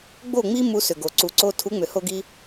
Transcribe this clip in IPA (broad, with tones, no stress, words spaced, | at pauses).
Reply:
ɡ͡bo˦˨ŋ͡mi˦ mu˧sʏ˨ɡo˨ ǀu˨ǀo˧ tʰu˨˦ŋ͡mʏ˨ho˧ ɡi˦